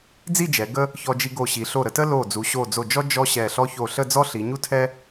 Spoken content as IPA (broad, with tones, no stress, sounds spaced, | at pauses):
d͡z i˥˧ d͡ʒ ɛ˩˧ ɡ ə˥ | ç ɔ˧ d͡ʒ i˧ ɡ o˧˩ ɕ i˩˧ ɬ o˧˩ ɾ ə˩˧ t ə˥ l o˧˩ d͡z u˩˧ ɕ o˧˩ d͡z o˧˩ d͡ʒ ɔ˥ d͡ʒ ɔ˥ ɕ ɛ˧˩ ɬ ɔ˥ ç o˧˩ ɬ ə˥˧ d͡z ɔ˥ ɬ i˩˧ ɲ u˥ tʰ ɛ˥